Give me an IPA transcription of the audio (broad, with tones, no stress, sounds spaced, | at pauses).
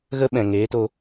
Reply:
ɣ ə˦ ɓ ɛ̃˨ ŋ eː˨˦ t o˧